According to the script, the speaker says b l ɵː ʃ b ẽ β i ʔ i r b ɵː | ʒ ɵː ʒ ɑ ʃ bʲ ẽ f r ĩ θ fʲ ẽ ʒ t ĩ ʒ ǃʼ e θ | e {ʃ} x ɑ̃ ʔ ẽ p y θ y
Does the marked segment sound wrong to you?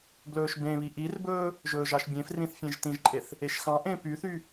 no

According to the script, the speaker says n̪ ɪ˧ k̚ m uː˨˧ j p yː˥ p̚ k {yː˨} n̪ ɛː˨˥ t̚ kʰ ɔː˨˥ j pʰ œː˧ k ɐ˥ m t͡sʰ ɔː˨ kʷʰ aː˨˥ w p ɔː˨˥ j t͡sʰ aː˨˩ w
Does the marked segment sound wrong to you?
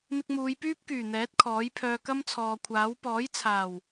yes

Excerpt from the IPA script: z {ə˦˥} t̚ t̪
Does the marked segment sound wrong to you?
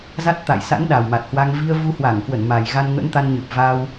yes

